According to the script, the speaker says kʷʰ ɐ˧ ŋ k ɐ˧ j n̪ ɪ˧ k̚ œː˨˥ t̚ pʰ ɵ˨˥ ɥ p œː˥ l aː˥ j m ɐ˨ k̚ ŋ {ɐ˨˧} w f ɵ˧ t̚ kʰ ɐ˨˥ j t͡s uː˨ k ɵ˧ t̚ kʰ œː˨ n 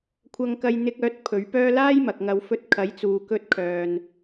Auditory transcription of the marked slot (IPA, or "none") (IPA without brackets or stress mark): ɐ˨˧